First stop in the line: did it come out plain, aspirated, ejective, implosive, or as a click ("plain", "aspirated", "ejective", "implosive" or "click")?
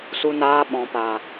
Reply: implosive